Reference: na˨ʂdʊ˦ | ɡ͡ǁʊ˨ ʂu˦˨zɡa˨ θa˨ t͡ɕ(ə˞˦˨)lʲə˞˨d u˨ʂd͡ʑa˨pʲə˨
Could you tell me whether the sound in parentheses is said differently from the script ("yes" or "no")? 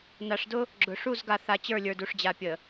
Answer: no